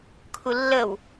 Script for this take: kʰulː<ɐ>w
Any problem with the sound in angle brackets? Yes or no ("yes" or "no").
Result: yes